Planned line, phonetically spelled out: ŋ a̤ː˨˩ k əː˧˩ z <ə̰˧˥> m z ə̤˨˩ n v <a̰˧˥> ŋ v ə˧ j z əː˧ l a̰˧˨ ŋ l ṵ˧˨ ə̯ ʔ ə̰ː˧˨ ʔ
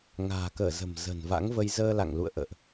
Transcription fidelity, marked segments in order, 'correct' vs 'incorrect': incorrect: ə̤˨˩, correct

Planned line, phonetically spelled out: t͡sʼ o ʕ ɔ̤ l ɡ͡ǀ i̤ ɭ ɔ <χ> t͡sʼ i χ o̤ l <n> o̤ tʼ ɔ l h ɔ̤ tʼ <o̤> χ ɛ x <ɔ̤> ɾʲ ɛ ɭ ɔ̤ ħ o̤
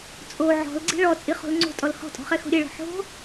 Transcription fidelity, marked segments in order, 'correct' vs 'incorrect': incorrect: none, incorrect: ŋ͡ǀ, incorrect: ɔ̤, incorrect: o̤

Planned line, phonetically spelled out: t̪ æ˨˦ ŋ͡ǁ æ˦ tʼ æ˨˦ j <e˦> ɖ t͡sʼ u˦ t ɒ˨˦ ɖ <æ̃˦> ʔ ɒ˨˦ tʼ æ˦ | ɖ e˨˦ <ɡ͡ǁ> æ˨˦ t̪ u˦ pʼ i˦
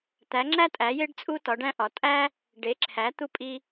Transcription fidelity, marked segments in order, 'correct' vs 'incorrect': correct, correct, incorrect: ǁʰ

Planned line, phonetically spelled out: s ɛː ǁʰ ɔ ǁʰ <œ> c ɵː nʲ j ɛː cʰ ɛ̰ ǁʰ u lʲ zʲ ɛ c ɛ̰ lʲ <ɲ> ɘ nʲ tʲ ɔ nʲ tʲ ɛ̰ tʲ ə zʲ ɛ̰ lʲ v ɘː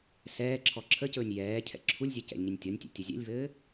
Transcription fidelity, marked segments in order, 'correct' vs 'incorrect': incorrect: ə, correct

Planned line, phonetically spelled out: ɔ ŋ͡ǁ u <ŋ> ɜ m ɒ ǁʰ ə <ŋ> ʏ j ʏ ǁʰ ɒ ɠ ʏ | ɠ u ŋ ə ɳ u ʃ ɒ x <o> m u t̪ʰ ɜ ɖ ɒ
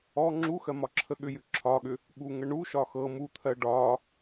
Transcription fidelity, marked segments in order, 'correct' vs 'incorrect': incorrect: x, incorrect: ɠ, incorrect: ɤ

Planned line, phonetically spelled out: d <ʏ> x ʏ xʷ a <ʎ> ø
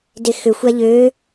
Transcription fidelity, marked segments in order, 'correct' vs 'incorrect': incorrect: ɪ, correct

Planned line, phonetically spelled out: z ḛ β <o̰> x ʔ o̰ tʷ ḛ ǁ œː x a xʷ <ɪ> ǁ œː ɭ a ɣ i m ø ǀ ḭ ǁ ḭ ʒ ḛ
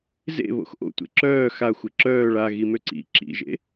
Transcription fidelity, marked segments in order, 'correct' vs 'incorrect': correct, correct

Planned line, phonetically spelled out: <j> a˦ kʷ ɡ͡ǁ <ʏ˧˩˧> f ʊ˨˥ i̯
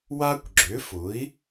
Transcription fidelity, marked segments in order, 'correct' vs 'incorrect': incorrect: w, incorrect: ʏ˨˥

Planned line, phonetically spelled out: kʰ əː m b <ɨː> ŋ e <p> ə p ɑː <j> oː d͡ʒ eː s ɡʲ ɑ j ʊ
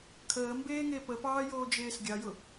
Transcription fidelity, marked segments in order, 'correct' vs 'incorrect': incorrect: eː, correct, correct

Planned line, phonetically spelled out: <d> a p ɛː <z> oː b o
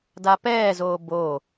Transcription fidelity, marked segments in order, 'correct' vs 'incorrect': correct, correct

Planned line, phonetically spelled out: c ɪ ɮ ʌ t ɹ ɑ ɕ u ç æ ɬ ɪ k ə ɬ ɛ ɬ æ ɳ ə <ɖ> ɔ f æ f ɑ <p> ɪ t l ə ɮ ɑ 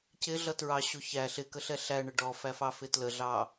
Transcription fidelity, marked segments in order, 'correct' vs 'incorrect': correct, incorrect: f

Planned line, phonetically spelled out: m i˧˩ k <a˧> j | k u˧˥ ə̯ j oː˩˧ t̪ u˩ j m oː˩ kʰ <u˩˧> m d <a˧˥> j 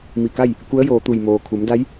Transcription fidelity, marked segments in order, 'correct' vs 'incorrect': incorrect: a˥˨, correct, correct

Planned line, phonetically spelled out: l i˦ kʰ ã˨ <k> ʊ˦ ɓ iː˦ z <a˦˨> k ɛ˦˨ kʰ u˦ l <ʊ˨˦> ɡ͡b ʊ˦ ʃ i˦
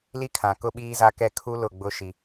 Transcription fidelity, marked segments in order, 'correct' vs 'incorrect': correct, incorrect: a˦, incorrect: ʊ˦˨

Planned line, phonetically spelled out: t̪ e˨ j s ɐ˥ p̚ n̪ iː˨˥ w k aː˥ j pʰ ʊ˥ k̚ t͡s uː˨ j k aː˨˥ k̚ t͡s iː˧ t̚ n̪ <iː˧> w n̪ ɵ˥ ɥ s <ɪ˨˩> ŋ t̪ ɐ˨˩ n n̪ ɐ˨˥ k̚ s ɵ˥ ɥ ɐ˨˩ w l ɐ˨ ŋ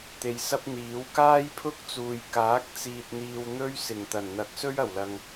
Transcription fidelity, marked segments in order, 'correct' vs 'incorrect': correct, correct

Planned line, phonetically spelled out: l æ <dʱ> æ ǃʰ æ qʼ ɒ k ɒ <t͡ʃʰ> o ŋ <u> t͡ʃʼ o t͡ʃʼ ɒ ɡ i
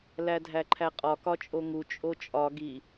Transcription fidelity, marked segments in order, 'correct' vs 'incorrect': correct, incorrect: t͡ʃʼ, correct

